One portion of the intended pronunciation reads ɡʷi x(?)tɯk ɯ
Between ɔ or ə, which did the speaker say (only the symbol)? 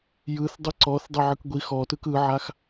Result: ɔ